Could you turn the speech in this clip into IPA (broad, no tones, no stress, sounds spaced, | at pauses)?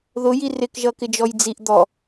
ð ʊ j i r ɪ k ʒ ʌ k ɪ d͡ʒ ɔ j d͡z i ʔ d̪ ɔ